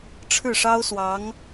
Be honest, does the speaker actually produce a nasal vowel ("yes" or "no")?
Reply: no